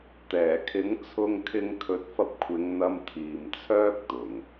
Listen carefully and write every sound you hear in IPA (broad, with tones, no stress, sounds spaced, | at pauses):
t̪ ɛː˨˩ kʰ ɪ˨˥ ŋ t͡sʰ ʊ˧ ŋ kʰ ɪ˧ ŋ kʰ ɵ˨˥ t̚ f ɐ˧ p̚ kʷʰ ɪ˨˧ ŋ n̪ ɐ˧ m t̪ʰ iː˨ m t͡sʰ œː˥ k̚ t̪ ʊ˨˩ ŋ